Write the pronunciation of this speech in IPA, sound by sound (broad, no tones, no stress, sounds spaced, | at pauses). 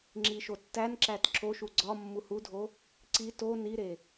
ŋ͡ǁ i ʃ o tː æ n ǁ æ t ǁʰ o ʃ u ɡ͡ǀ ɒ mː u h u dʱ o | ǀ i t o n i ɾ e